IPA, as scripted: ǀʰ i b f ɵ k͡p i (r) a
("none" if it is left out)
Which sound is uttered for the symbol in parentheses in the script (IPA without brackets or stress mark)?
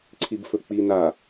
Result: n